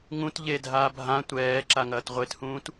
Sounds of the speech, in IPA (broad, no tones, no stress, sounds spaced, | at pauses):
ŋ ũ t ʎ e dʱ aː bʱ ã tʷ ɛː ǁ a ŋ ɐː t ʁʷ e t h ũː t